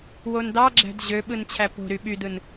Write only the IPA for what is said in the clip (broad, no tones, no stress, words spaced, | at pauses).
wondɑɡ͡ǁæ̤d ʑø ɓɯnt͡ɕʰæpo̤ɾy ɓydɯn